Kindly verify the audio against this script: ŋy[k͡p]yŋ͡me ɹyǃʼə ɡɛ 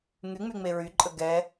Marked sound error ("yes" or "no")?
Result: yes